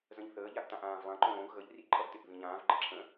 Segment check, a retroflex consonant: absent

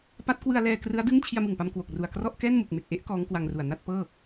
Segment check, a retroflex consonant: absent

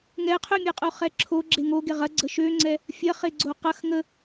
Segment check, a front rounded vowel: present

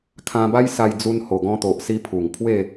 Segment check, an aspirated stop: present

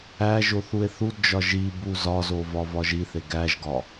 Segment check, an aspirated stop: absent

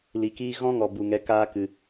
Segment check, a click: absent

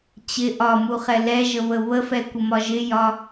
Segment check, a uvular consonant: present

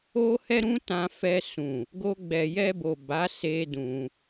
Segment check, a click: absent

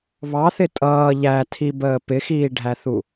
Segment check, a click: absent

